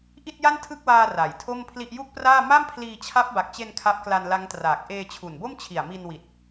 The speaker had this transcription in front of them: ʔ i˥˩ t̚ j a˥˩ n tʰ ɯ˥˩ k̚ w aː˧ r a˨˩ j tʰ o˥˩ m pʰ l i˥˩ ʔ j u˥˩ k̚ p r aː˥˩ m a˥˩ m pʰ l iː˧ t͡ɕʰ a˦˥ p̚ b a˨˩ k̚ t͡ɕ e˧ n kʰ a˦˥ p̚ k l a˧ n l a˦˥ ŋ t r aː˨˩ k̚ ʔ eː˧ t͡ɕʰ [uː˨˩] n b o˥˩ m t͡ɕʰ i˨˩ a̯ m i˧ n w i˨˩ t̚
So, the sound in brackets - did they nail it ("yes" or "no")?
no